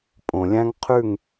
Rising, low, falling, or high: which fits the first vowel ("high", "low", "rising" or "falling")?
low